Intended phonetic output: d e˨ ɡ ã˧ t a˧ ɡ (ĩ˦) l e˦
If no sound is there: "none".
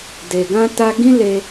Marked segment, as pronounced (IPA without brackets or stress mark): ĩ˦